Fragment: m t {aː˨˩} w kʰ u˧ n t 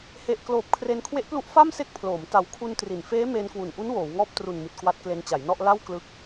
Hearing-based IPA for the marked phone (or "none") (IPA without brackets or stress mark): a˨˩